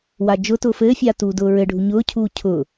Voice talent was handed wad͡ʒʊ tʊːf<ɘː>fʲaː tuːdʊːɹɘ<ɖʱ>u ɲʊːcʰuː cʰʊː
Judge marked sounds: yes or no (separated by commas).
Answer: yes, yes